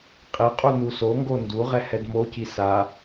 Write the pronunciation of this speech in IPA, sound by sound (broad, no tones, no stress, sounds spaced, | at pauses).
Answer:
qʼ i qʼ u n u s o ŋ ɡ o n d u ʁ ɛ h ɛ d m o c i s a